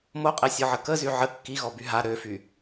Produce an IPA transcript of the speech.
m o qʼ ɛ sʲ ɔ ʕ ə k ə z y ʕ ə kː i ɣ ɔ b y ɦ a ɾ ø f y

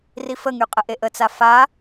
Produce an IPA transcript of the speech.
r i f ə ŋ y qʼ ə ʔ e ʔ ə t͡s a f a

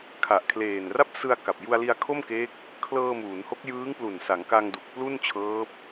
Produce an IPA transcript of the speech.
kʰ a˨˩ ʔ kʰ l eː˨˩ n r a˥˩ p̚ s ɯ˧ a̯ k a˨˩ p̚ j u˧ a̯ l i˧ a̯ kʰ o˥˩ m k eː˦˥ k̚ | kʰ l ɤː˧ m uː˩˦ n h o˦˥ k̚ j ɯː˦˥ ŋ p l u˨˩ n s a˩˦ ŋ k a˧ ŋ d u˨˩ k̚ p l u˥˩ n t͡ɕʰ ɤː˦˥ p̚

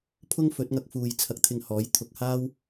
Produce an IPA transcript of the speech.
pʰ ʊ˥ ŋ f ɵ˨˥ t̚ ŋ ɐ˧ k̚ f uː˨ j t͡sʰ ɐ˧ k̚ t̪ʰ ɪ˧ ŋ h ɔː˨˥ j t̪ʰ ʊ˨ k̚ h aː˥ w

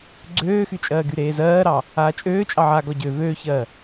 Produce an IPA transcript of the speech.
ɡ͡ǀ øː x y t͡ʃʼ ɜː ɡ y ɾ eː z ɜː ɾ ɑ | aː t͡ʃʼ øː t͡ʃʼ ɑ ʕ aː ɡ ɔ ɟ ø v øː ç ɜː

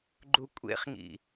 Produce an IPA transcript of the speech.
ɡ͡ǃ u kʷʼ ḛ χ ŋ ḭ

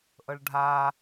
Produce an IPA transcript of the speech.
ʔ ɤ ɭ ɖʱ a

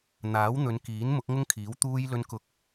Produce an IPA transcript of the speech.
n̪ aː˨˥ w n̪ ɵ˨˧ n k iː˨˥ n m ʊ˨˥ k̚ ŋ ʊ˥ ŋ kʰ iː˨˥ w t̪ uː˥ j l ɵ˥ n k ʊ˥ k̚

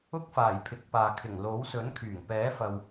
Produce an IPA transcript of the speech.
ʊ˥ k̚ f aː˨˩ j pʰ ɪ˨˥ k̚ p aː˨ kʰ ɪ˨˩ ŋ l o˨˥ w s ɵ˨˥ n kʰ yː˨˩ ŋ p ɛː˨˥ f ɐ˨ w

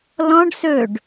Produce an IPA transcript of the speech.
l ɔ̃ ɖ s ɵ ɖ

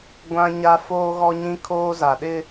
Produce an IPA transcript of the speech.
ɡʷ ã˦ ɲ a˦ f oː˦ ɣ ɔ˦ ɲ ĩ˦ kʰ oː˦ z a˨ ɗ ɪ˦

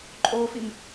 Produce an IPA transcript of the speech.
ǃʼ oː f i m

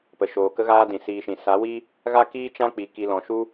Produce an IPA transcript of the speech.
p ə˨ ʃ oː˨ k ə˦ ɣ aː˦ d ĩ˨ s iː˧ ʃ ĩ˨ s a˨˦ w i˦ | ɣ a˦ k iː˦ t͡ʃ ã˦ k͡p i˨ k i˧ l ɔ̃˨ ʃ u˦

